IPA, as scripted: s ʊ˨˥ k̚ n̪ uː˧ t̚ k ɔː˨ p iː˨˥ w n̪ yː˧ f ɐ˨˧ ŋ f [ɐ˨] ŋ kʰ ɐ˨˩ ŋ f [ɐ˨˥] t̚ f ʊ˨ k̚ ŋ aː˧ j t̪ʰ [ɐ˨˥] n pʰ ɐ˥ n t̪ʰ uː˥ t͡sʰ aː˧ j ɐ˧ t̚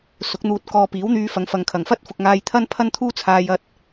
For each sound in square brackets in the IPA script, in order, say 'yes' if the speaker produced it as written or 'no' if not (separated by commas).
yes, no, no